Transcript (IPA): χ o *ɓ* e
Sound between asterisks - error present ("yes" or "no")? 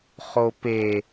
yes